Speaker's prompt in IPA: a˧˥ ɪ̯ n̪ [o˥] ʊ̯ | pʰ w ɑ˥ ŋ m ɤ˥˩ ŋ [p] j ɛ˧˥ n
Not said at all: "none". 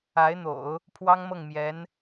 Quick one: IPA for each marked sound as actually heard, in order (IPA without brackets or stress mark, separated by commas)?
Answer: o̰˨˩˦, m